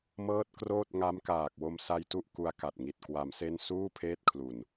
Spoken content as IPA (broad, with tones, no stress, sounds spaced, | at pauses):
m ɤː˦˥ t̚ k r oː˥˩ t̚ ŋ a˦˥ m k aː˨˩ k̚ w o˧ m s a˧ j t u˥˩ ʔ k u˦˥ a̯ k a˨˩ t̚ ŋ i˨˩ t̚ k w a˩˦ m s e˥˩ n s uː˥˩ pʰ eː˥˩ t̚ kʰ l u˨˩ n